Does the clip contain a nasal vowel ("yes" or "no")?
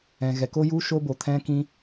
yes